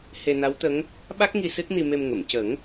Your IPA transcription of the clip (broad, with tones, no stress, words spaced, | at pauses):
he˧na˧˥wt̪ə˧˥ŋ | ɓa˦˥k̚ŋi˧ sɨ˦˥t̚ni˧me˧m ŋə˨˩˨m cə˨˩˦ŋ